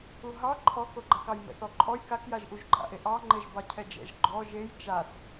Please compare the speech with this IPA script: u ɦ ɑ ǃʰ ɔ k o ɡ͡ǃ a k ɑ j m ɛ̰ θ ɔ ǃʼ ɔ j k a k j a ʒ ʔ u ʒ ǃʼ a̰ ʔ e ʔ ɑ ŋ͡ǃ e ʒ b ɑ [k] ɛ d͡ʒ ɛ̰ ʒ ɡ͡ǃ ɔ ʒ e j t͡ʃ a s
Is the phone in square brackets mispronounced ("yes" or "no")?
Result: yes